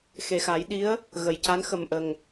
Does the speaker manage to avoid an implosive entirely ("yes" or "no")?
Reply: no